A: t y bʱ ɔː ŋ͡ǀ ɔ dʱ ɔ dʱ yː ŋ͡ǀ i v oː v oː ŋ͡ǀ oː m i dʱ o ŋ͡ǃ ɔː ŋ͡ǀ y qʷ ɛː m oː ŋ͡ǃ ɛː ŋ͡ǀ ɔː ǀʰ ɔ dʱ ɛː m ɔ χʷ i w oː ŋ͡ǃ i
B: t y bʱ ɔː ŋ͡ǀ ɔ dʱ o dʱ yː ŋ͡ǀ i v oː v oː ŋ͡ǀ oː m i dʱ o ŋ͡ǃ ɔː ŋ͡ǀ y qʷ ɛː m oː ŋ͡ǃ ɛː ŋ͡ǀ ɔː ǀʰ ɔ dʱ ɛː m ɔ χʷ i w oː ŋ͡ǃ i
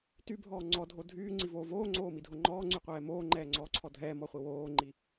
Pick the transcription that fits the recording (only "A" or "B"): B